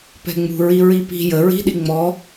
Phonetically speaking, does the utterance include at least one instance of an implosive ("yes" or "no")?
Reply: yes